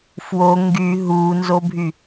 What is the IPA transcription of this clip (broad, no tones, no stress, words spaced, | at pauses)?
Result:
fwo ŋɡy ɦuːnzobʱy